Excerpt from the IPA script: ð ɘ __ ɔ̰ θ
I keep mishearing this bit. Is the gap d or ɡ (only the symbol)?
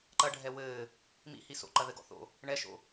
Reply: ɡ